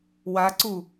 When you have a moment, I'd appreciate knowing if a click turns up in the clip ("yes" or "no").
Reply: yes